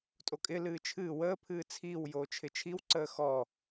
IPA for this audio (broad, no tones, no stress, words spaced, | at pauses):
tʼokʼɪ lɨːt͡ʃʰɨː wəː pʰɨːt͡sʰiːw joːt͡ʃʰɪt͡ʃʰiw ǀəːxɔ